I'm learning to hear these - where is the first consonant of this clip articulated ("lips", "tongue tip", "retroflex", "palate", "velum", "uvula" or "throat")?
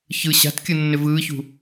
palate